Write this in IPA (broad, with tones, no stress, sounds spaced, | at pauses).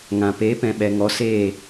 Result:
ŋ ã˨ p eː˨˦ p ɛ̃˨ ɓ ɛ˨ ŋ ɔ˨˦ s eː˦˨